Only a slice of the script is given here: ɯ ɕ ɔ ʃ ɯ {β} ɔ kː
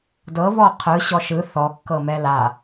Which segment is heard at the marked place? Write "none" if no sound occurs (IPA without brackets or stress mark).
θ